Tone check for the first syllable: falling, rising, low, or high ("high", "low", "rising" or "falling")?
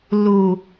low